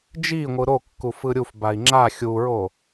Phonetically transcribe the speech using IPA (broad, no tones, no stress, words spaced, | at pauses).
d͡ʒiŋʷɯ ɾokːuf ɯɾʲufbai̯ ŋ͡ǁa xʲuɹo